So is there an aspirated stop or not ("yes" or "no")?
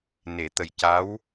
no